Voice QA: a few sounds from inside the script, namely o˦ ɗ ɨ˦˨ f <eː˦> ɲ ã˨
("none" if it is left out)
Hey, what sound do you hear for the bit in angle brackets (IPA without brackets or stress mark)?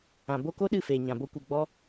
eː˨